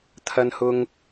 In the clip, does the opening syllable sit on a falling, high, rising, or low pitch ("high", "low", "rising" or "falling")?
high